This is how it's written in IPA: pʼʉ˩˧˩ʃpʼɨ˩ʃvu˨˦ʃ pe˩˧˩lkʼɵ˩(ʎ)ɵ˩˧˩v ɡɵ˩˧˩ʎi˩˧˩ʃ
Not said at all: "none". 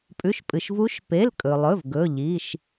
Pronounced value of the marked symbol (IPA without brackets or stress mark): lˠ